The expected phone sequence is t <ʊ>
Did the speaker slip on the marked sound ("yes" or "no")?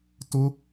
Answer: no